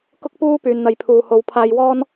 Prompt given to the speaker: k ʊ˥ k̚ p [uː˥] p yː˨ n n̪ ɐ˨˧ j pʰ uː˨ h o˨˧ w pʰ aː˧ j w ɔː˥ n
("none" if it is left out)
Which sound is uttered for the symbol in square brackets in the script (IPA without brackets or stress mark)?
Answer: uː˥